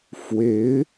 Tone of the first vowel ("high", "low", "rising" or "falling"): rising